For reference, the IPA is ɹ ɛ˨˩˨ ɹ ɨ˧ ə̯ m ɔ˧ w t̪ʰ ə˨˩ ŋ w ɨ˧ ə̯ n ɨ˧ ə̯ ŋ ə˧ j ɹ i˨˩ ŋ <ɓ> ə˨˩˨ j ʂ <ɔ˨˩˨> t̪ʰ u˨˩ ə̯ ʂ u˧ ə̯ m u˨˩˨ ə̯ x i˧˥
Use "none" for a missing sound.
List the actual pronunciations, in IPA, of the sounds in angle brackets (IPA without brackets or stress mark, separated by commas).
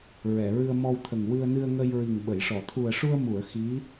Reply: ɓ, ɔ˨˩˨